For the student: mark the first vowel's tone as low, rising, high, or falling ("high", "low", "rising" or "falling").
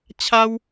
high